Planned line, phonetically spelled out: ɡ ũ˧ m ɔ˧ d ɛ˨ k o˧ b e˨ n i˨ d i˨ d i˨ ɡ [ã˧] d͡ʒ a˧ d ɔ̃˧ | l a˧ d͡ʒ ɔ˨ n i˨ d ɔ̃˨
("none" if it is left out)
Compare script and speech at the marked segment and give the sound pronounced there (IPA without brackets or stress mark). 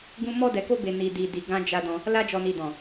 ã˧